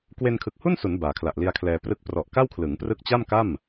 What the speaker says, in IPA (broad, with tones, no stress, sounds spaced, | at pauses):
k w e˧ n kʰ ɯ˨˩ k̚ h u˥˩ n s u˩˦ n b aː˩˦ kʰ l a˨˩ ʔ l i˧ a̯ kʰ l ɛː˧ p r ɯ˦˥ k̚ p r ɔ˨˩ ʔ k a˥˩ w kʰ l ɯ˩˦ ŋ p r ɯ˦˥ k̚ t͡ɕ a˥˩ m k a˥˩ m